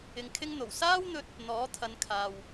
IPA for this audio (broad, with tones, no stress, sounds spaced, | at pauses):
ɪ˧ ŋ kʰ ɪ˥ ŋ n̪ o˨˩ w s aː˥ w n̪ ɵ˧ t̚ | n̪ ɔː˨˥ t̪ʰ ɐ˨˧ n kʰ aː˨ w